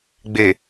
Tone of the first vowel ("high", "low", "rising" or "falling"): low